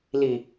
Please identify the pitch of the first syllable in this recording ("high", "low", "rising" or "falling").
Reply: low